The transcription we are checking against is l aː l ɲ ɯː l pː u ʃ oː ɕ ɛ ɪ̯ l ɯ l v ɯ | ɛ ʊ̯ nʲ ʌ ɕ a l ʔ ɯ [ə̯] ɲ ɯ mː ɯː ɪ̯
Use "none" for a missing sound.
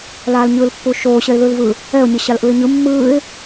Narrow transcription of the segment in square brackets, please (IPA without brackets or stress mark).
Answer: ɪ̯